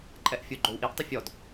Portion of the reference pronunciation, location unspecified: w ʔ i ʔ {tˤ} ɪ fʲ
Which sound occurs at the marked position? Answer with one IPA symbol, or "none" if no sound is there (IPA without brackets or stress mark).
tˤ